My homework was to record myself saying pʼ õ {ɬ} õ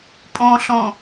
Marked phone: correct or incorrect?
correct